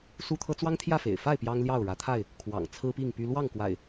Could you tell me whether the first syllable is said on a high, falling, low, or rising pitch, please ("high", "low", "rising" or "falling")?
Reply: high